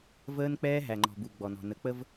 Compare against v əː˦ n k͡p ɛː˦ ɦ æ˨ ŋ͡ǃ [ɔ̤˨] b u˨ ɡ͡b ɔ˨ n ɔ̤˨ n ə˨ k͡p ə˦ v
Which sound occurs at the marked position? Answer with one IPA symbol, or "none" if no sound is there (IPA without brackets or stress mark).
ɔ̤˨